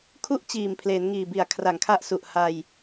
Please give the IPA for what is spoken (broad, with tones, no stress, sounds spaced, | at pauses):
kʰ u˥˩ ʔ t͡ɕ iː˨˩ m pʰ l eː˩˦ n ŋ iː˨˩ b i˨˩ a̯ kʰ r a˨˩ ŋ kʰ a˥˩ ʔ s u˨˩ ʔ h a˧ j